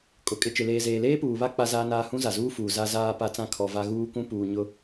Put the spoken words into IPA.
kʼ ʊ˨ kʼ ɪ˨ t͡ʃ ɪ˨ l eː˨ z eː˨ l eː˦ p uː˨ β a˦ k͡p a˦ z aː˦ n aː˦ h ũ˦ z a˨ z uː˦ f uː˨ z a˨ z aː˨ p a˨ t͡s ã˨ kʰ ɔ˨ v a˦ ɣ uː˦ k ũ˦ p uː˨ ɲ ʊ˦

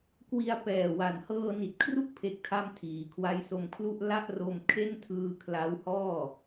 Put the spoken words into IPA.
k w i˧ a̯ p ɛː˨˩ w a˨˩ n h ɤː˧ n i˨˩ t̚ kʰ r u˥˩ k̚ pʰ e˦˥ k̚ tʰ a˥˩ m tʰ iː˩˦ kʰ w a˦˥ j s o˧ m kʰ l u˥˩ ʔ l a˥˩ ʔ r o˧ m kʰ e˥˩ n tʰ ɯː˧ kʰ l a˦˥ w h ɔː˥˩

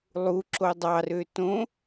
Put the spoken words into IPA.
lˠ u ǁ o dˤ ɑ r ø t õ

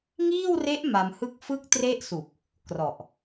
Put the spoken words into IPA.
ŋ iː˥˩ w r e˦˥ ʔ m a˧ m h ɯ˥˩ k̚ f ɯ˥˩ k̚ t r e˥˩ ʔ s u˨˩ k̚ | k r ɔ˨˩ ʔ

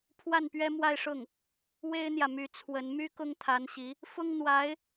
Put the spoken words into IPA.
pʰ w a˥˩ n p ɥ ɛ˥ m w a˥˧ ɪ̯ ʂ ʊ˥˩ ŋ | w e˥ ɪ̯ n̪ j ä˨ m y˧˥ t͡sʰ w ə˧˥ n m y˥ k ʊ˥ ŋ t̪ʰ a˧˥ n ɕ i˧˥ | f ʊ˥ ŋ n̪ w a˧˥ ɪ̯

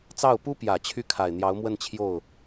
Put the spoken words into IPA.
t͡s ɑ˥˩ ʊ̯ p u˥ p j ä˨˩ t͡ɕʰ y˥˩ kʰ a˨˩ ɪ̯ n̪ j ɑ˧˥ ʊ̯ m w ə˥˧ n t͡ɕʰ j o˥˩ ʊ̯

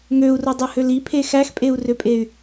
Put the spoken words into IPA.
ŋ ø u̯ r o dˤ ɯ h ø l i pʰ e x æ x pʼ e u̯ r ø pʼ e y̯

